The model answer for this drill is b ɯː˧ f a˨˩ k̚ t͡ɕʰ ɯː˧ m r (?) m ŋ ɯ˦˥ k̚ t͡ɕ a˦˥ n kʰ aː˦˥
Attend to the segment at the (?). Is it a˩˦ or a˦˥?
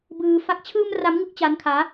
a˦˥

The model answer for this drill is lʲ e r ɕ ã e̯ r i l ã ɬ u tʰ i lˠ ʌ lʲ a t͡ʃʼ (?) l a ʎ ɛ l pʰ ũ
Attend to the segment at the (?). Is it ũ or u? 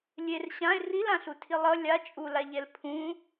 u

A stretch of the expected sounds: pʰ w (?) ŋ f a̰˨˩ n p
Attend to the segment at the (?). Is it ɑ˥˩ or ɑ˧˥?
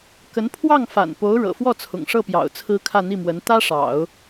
ɑ˥˩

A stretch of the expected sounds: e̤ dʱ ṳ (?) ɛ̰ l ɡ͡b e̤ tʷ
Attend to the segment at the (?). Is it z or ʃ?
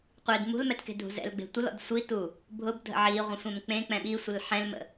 z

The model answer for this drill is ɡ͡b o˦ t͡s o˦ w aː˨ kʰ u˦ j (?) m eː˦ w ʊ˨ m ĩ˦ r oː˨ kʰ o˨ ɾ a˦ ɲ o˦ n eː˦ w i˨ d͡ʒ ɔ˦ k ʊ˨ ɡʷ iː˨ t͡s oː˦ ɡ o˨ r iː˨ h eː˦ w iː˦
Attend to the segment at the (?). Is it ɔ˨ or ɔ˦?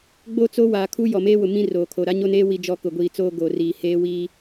ɔ˨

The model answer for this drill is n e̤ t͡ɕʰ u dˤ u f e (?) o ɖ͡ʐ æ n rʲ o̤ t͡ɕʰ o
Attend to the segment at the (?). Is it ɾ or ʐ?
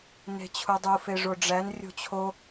ʐ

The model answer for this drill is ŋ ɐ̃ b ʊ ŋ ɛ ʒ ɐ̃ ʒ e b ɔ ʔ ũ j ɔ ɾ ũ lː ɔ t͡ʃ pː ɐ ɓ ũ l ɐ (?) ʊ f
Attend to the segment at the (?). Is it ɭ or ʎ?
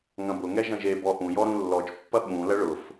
ɭ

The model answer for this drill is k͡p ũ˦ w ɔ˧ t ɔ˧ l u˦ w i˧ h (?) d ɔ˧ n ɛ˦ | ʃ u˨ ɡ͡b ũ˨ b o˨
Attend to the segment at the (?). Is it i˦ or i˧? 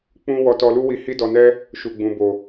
i˦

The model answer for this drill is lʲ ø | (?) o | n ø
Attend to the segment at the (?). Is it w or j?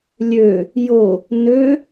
j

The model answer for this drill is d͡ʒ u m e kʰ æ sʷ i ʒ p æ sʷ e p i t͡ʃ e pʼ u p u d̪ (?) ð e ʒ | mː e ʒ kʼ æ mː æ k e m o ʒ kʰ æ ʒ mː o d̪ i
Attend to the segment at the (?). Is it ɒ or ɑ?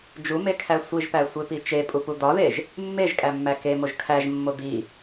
ɒ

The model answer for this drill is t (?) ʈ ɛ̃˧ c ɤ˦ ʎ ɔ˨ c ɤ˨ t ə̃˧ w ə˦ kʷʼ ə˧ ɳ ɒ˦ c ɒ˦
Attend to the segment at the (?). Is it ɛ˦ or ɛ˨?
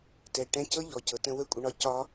ɛ˨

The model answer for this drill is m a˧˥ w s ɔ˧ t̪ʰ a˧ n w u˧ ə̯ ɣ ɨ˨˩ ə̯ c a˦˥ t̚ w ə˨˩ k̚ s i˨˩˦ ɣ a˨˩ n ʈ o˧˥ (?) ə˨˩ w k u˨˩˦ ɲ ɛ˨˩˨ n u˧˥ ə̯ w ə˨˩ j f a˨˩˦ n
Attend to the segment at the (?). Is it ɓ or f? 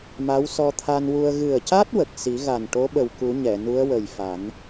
ɓ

